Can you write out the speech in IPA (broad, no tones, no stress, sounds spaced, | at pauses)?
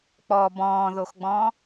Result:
k͡p ɔ b ɔ̃ː ð o x ɡ͡b ɔ̃ː